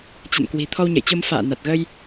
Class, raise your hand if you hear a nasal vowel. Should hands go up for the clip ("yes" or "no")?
no